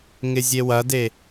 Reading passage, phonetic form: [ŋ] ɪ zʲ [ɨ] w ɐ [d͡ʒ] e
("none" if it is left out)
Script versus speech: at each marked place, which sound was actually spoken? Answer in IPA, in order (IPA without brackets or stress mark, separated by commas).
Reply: ŋ, e, d